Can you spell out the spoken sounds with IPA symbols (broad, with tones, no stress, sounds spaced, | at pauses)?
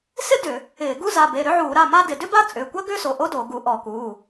s ɪ˥ d ʏ˧˩˧ | ɪː˧˩˧ ɡ u˥ z a˩˧˩ b e˩˧˩ ɾ ʏ˥ ʕ uː˧˩˧ ɾ a˩˧˩ m a˥ d ɪ˧˩˧ d ʏ˥ b a˥ t͡sʼ ʏː˩˧˩ kʷ ɐ˥ ɡ ʏː˥ s o˩˧˩ ʔ o˥ d o˧˩˧ ɡ u˧˩˧ ʔ ɔ˧˩˧ k uː˩˧˩